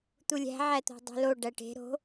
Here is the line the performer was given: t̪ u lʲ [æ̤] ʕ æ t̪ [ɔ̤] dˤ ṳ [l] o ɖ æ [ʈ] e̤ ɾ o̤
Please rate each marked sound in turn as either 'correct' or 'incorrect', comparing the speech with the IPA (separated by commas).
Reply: correct, incorrect, correct, correct